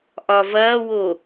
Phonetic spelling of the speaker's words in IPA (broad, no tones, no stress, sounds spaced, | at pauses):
ʔ ɒ v ɐː w o